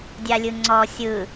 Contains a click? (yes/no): yes